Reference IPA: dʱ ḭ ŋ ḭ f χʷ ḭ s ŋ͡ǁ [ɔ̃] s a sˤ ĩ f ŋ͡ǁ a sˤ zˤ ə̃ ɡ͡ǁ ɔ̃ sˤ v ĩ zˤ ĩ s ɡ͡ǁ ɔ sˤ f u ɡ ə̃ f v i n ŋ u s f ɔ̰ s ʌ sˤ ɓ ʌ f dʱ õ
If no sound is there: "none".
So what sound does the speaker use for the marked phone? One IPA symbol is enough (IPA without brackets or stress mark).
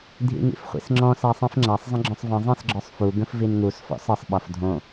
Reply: ɔ̃